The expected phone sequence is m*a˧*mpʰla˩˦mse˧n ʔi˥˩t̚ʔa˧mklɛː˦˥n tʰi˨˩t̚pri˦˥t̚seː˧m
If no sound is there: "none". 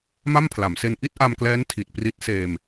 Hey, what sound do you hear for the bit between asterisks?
a˥˩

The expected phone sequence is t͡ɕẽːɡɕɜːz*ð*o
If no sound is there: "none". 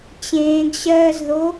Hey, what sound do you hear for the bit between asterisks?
ð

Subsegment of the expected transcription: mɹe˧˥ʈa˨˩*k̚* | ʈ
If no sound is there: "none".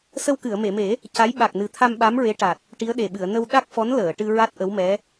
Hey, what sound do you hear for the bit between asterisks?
t̚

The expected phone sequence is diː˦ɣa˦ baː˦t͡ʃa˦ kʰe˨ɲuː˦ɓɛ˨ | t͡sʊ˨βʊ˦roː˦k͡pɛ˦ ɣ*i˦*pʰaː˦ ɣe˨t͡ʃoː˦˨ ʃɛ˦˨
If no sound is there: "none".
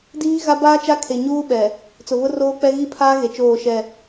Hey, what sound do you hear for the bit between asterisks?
i˦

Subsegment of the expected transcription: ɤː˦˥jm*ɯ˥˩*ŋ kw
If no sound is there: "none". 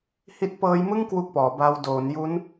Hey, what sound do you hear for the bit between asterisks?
ɯ˥˩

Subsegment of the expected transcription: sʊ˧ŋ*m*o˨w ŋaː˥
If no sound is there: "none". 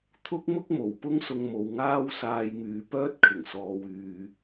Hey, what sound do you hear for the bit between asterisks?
m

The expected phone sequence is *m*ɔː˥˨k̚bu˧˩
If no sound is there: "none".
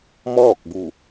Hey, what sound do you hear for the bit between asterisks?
m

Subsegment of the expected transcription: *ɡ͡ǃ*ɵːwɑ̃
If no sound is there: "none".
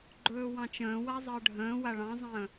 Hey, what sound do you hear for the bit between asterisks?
ɡ͡ǃ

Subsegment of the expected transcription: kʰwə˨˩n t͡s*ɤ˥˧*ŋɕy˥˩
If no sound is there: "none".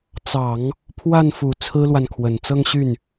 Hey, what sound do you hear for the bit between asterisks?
ɤ˥˧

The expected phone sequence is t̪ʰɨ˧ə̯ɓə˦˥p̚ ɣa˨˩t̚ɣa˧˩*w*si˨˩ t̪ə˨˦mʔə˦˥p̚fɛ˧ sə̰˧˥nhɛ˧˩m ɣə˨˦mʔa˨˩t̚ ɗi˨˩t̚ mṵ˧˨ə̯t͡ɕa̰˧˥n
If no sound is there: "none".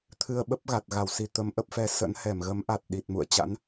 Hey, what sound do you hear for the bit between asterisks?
w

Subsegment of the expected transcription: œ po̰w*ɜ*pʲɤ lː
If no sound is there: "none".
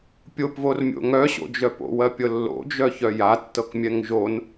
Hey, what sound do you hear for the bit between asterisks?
ɜ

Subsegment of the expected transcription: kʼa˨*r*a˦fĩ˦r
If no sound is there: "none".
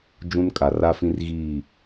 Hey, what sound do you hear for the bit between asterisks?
r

